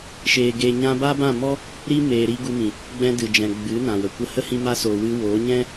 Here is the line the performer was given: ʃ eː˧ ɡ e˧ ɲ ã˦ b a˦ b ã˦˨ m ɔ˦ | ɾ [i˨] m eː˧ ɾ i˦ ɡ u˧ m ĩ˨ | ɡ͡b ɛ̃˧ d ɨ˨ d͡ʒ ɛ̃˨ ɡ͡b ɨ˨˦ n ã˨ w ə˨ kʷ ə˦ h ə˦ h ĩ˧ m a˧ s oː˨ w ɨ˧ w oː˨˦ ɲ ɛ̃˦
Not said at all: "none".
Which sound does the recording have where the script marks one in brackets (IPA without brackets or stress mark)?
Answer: i˦